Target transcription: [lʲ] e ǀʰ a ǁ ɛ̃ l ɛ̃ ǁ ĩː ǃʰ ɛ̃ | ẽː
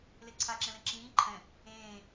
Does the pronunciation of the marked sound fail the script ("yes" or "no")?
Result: yes